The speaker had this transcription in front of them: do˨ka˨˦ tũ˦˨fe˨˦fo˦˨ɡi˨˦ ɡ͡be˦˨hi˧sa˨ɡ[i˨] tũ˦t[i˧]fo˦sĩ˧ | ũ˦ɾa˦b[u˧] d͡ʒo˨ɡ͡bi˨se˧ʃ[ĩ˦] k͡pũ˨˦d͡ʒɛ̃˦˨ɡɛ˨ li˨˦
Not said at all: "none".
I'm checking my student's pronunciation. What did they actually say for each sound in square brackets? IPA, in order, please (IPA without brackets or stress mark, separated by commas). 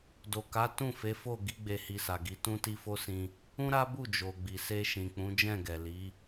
i˨˦, i˦, u˦˨, ĩ˨